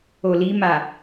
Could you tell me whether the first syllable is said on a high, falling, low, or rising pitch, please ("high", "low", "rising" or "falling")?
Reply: low